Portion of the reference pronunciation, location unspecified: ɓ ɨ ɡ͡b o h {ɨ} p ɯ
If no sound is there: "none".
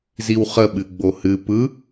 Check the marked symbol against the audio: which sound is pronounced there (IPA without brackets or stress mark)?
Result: ɨ